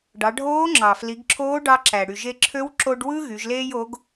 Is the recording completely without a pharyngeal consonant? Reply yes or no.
yes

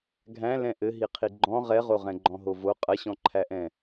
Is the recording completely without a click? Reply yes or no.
no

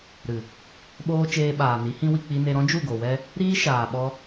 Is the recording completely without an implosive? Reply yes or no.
no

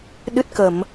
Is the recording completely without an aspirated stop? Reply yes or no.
yes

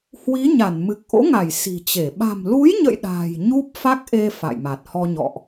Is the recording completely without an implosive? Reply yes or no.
no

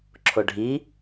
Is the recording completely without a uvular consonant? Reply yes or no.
yes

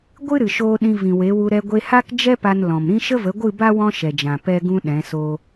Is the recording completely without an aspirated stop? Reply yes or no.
yes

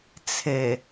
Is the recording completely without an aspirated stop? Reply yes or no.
no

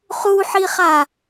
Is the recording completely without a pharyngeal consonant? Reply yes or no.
no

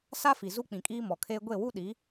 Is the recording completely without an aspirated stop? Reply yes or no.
no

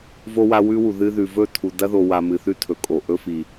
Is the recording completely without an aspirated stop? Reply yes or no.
no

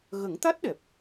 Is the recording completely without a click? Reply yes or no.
yes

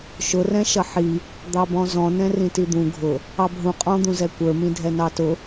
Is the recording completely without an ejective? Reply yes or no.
no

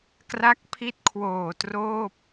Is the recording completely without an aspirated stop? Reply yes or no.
no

